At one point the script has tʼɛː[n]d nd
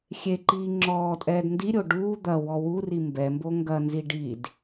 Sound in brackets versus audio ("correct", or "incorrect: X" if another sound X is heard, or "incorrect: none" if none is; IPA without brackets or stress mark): incorrect: none